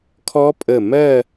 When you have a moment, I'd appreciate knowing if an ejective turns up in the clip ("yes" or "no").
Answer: yes